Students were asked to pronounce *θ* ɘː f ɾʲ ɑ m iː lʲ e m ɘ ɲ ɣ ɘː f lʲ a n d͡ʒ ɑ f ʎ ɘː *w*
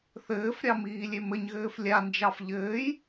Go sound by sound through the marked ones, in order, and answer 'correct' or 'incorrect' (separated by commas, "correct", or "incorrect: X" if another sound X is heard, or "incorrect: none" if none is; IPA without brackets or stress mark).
correct, incorrect: j